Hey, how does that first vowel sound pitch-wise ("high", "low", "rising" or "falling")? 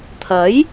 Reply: rising